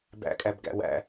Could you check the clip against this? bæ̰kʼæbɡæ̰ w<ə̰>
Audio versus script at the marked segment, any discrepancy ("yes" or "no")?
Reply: yes